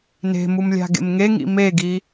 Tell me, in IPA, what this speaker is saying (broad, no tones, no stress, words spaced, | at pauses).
ne̤mum lʲa̤ɡḛmŋeŋḭ meɡi